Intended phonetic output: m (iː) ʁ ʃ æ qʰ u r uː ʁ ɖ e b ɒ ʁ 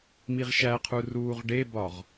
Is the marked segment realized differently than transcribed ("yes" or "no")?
yes